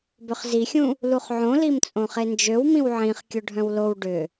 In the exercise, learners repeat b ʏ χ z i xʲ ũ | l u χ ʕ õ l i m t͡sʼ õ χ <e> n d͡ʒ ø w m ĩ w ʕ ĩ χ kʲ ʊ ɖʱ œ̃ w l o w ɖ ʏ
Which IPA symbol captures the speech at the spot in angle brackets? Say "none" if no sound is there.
e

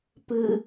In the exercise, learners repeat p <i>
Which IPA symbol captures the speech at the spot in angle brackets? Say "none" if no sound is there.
ɨ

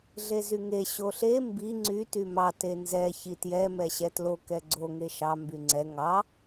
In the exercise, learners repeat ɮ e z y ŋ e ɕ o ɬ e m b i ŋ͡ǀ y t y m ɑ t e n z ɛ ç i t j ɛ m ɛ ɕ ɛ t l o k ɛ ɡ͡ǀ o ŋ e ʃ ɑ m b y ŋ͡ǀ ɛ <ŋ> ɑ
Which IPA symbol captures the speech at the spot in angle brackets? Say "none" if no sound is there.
ŋ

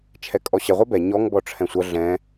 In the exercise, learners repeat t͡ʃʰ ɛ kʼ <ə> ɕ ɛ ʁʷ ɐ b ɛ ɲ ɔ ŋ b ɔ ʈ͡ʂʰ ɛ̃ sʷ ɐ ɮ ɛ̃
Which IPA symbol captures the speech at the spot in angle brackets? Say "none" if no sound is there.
ɔ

